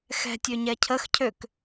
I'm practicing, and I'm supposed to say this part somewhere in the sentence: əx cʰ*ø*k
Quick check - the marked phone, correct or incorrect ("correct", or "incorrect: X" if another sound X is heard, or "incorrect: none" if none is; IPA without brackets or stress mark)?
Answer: correct